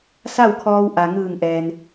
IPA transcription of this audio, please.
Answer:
s a˥˨ w kʰ ɔː˧ w ʔ a˩ ŋ ɯː˧˩ ŋ ʔ ɛː˩ n

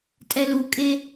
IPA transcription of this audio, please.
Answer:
tʼ ɛ l u kʼ e

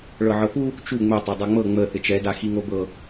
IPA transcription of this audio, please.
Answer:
ɭ ɤ ʕ ɤ p u | t͡ʃ u ŋ͡m ɛ tˤ ɤ dˤ ɛ ŋ͡m ɤ ŋ͡m ə θ ɪ t͡ʃ ɛ d a x i ŋ o b ɤ

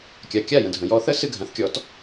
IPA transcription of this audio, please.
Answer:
kʲ a˩ kʲ a˥˩ j ə̃˩ dʱ ə̃˩ j ɔ˧ θ ə˥ s ɨ˧ ɡʱ ã˩˥ θ kʲ ɔ˩˥ t

